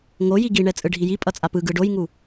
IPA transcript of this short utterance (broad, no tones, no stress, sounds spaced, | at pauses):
ŋ o j i ɡ i ɳ ɛ t͡sʼ ɯ ɖʱ i j i pʼ ʌ t͡sʼ a p ɯ ɡ ɯ ɖ o j ŋ u